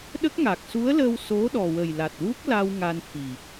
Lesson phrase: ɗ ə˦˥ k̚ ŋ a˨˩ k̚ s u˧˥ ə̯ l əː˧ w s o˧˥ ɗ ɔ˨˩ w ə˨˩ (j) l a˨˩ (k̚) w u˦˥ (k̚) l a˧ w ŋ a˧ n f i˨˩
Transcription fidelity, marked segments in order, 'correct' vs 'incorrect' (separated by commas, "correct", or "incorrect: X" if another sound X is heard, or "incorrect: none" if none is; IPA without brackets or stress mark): correct, incorrect: t̚, correct